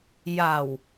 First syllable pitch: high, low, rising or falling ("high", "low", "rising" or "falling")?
low